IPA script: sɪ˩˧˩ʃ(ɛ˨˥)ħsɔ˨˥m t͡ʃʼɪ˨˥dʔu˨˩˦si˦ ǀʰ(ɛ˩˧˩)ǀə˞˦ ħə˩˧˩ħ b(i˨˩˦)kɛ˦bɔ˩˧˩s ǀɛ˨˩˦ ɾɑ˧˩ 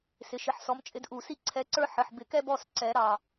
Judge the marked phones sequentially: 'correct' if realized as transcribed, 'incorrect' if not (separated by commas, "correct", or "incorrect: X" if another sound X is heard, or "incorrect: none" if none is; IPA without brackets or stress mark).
incorrect: ɪ˨˥, incorrect: ɛ˨˥, incorrect: ɪ˨˩˦